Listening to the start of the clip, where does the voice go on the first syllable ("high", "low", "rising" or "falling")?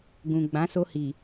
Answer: low